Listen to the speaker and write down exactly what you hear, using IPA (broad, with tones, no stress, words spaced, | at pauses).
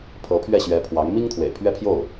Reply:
pʰɤ˧˥pʰɥɛ˥˩ɕɥɛ˧˥ pʰwɑ˧˥ŋ mi˥ŋt̪ʰwḛ˨˩ɪ̯pʰɥɛ˥˧pʰjo˥˩ʊ̯